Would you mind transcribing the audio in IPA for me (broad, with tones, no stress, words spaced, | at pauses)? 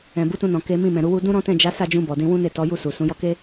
ɛ̃˨bu˨˦tũ˧nɔ̃˨ ke˨˦mĩ˦˨mɛ̃˨ ɾu˧wu˧ dũ˦ɾɔ̃˦tɛ̃˦˨ d͡ʒa˨˦sa˦˨d͡ʒũ˧ bɔ˨dĩ˧wũ˦ne˦˨ tɔ˨˦ju˦˨ su˨sũ˨˦ jɔ˧ke˦